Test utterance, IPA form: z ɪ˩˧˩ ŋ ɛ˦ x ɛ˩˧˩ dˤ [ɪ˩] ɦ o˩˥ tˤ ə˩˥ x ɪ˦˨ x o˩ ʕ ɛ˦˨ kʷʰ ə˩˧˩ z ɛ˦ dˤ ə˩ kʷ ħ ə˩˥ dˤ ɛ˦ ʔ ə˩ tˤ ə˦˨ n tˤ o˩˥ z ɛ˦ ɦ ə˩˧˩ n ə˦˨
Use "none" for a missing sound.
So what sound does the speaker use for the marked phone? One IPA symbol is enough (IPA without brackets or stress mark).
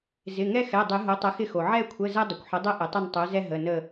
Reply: ɪ˨˩˦